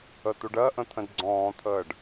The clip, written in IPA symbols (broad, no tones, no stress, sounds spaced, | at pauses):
ə t̪ u ɖ ɜ ʔ ə̃ t̪ʰ ə̃ d ɡ͡ǀ ɔ̃ː t̪ʰ əː ɖ